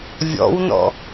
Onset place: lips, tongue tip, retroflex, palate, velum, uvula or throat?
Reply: lips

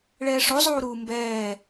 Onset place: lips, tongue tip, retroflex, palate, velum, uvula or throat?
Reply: retroflex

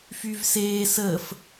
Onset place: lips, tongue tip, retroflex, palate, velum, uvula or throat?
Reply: lips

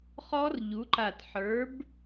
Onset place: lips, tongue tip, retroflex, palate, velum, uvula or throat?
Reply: uvula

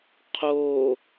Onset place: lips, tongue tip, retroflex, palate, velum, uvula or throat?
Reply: uvula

